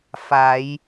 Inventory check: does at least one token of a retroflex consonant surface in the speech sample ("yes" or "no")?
no